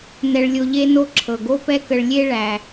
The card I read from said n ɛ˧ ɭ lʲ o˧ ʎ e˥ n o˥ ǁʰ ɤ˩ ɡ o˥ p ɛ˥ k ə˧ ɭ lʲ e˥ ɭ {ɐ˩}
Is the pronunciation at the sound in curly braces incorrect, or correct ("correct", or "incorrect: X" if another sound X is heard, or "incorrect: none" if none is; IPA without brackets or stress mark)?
incorrect: æ˩